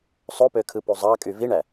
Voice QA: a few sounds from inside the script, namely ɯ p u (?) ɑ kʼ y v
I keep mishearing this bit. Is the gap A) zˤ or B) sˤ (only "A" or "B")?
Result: A